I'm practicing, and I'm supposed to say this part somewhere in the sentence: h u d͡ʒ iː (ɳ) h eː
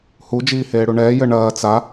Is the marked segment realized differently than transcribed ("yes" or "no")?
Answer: yes